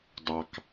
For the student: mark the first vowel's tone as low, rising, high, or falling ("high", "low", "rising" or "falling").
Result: low